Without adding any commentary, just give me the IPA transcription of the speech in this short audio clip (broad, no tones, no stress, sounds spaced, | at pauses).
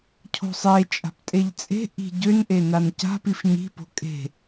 cʰ o̤ sˤ e t͡ʃʼ a̤ p tʼ e ʎ t͡sʼ e̤ ʔ i̤ ɟ ø n ʔ e n a n c a̤ p i f ɲ i̤ p o̤ kʼ e̤